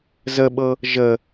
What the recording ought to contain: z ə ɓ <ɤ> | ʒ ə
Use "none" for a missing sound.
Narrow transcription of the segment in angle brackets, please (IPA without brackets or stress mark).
ɤ